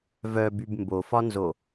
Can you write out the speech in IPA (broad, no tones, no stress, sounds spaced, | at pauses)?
v œ b y b m b o f ɒ n z o